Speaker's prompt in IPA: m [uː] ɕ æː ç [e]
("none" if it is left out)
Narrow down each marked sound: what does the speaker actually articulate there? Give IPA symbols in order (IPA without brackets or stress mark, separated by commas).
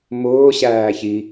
ʊː, i